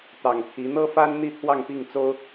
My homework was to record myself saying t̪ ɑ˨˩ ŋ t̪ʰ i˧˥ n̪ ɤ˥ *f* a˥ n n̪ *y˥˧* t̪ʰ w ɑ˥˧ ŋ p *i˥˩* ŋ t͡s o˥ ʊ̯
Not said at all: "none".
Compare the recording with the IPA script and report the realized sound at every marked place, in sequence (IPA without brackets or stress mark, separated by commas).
f, i˥˧, i˥˩